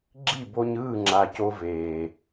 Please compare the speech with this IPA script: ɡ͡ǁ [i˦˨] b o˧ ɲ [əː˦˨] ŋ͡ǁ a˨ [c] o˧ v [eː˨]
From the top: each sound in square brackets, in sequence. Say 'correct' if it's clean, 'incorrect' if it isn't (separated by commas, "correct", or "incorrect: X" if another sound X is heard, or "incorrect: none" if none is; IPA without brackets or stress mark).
correct, incorrect: ɯː˦˨, correct, correct